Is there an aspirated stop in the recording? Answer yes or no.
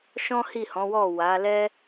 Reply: no